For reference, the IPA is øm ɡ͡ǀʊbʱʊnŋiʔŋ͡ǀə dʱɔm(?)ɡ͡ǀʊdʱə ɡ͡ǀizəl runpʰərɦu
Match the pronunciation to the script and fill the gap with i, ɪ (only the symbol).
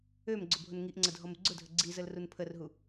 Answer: ɪ